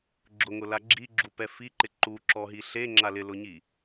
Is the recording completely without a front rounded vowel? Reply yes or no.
yes